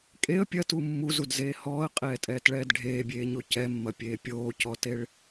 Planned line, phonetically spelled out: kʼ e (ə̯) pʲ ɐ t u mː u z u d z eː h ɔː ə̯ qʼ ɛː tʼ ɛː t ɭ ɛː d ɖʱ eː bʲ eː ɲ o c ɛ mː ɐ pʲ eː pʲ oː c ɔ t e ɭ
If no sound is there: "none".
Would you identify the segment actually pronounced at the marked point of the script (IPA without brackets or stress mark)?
ə̯